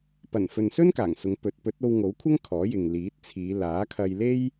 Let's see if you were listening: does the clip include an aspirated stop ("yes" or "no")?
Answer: yes